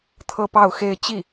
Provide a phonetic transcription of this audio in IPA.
t̪ʰ ɤ˥˧ p ɑ˥˧ ʊ̯ x e˥˧ ɪ̯ t͡ɕ i˥˩

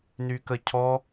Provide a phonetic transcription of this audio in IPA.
n y k ə cʰ ɔ

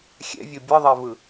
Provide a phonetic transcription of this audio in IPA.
xʲ ɛ̰ vʲ o bʲ ʌ ðˤ ɛ v ɯ

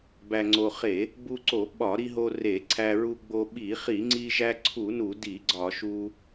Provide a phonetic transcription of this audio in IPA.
b æ˧ ŋ͡ǀ o˧ χ e˧˩˧ | b u˧ ǀ o˧˩˧ ɓ ɒ˧˩˧ ɾ i˧ ɦ o˧ r e˧˩˧ ǀʰ æ˧ ɹ u˧ ɡ͡b o˧ ɓ i˧˩˧ χ i˧˩˧ ŋ͡ǀ i˧ ʒ æ˧ ǀʰ u˧˩˧ n u˧˩˧ d i˧˩˧ ɡ͡ǀ ɒ˧˩˧ ʃ u˧

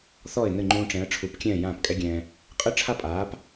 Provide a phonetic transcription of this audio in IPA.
θ ɔ˥˩ ɪ̯ n ɘ˥˩ ŋ͡ǃ ũː˧ ʈ͡ʂ ɛ̃˩˥ ə̯ ʈ͡ʂʰ u˩˥ p kʲ ɛ̃ː˥˩ j ãː˥˩ p kʼ ɛ˥ ɡʲ ɛ̃ː˧ | qʼ ɨ˥ ʈ͡ʂʰ a˥ pʼ aː˩˥ p

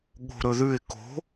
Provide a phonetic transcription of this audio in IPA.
ɠ o̤ ɾ ɵ ð ʉ ɪ̯ k o̤

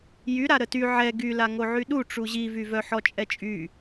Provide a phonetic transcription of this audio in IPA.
j y ɾ a ɾ ə t y ʕ ɛ ɡ y l a ŋ o ʕ y ɗ u ʈ͡ʂ u ʑ i v y v œ ħ ɔ t͡ʃʼ ɛ t͡ʃʼ y

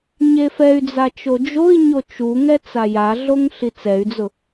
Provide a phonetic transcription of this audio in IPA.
ɲ e f ɛ y̯ d͡z a t͡ʃ o d͡ʒ o i̯ ɲ o t͡ʃ u ŋ ɛ t͡s a j a ɮ o ŋ ɬ i t͡s ɛ y̯ d͡z ʊ

